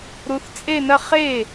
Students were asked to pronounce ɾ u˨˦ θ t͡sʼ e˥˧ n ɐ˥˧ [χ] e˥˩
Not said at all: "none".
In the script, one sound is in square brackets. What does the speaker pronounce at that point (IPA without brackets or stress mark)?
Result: χ